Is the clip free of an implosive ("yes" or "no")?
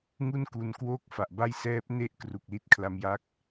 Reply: yes